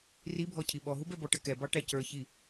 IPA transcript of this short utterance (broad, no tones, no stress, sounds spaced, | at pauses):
r i bʱ ɔ cʰ i ɓ ɔ ɦ u b ɛ b ɔ ʈ ə k ɛ b ɑ ʈ æ c ə˞ ç i